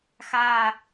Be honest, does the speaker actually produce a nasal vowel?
no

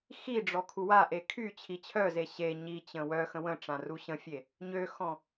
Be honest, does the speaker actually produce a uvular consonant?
no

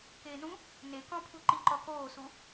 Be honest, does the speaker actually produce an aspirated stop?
yes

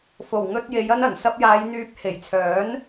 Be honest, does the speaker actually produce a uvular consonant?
no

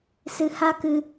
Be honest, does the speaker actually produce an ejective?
no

